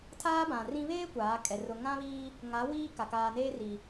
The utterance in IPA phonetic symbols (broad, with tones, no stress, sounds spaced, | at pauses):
tʰ aː˦ b ã˨ r ĩ˦ β eː˦ kʷ aː˨˦ kʼ ɛ˨ r ʊ˨ ŋ ã˦ β iː˦ | ŋ a˨˦ w iː˦ k a˨ k aː˨ n eː˦ r i˨